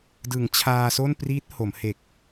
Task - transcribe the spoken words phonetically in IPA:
d ɯ˩˦ ŋ t͡ɕʰ aː˧ s o˥˩ n p r iː˦˥ t̚ h o˩˦ m h e˨˩ k̚

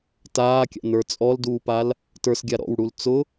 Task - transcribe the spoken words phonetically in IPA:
t aː kʲ a̰ n ə˞ t͡sʼ ɔ l d uː p a l | t ə˞ s ɡʲ a ɾ ɔ̰ w ɽ u l t͡s ʊ

